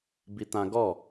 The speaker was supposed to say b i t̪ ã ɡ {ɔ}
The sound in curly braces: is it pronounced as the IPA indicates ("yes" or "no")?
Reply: yes